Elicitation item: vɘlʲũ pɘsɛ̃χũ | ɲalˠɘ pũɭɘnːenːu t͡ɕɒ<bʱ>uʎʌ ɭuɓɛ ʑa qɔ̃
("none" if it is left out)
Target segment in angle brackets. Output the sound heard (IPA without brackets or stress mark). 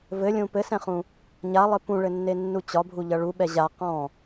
bʱ